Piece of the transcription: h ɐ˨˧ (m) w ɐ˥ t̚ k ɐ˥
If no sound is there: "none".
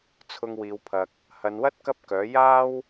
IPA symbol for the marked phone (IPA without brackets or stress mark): n